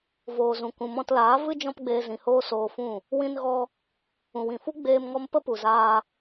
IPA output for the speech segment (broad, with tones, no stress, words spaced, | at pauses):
voː˨zũ˨ kũ˨mɔ̃˧tlaː˨˦ vɨ˦ d͡ʒɔ̃˦pɡ͡beː˧zĩ˨hoː˦ soː˧fũ˦˨ | wĩ˧nɣɔ˧ | ũ˨wĩ˨fu˦ ɡ͡beː˧mŋɔ˧m pə˦pu˨zaː˧